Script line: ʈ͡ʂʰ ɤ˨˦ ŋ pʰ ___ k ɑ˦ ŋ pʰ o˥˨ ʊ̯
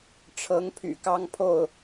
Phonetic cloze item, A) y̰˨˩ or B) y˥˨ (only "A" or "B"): A